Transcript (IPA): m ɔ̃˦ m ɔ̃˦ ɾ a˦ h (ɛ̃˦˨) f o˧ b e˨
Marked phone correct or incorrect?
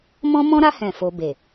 correct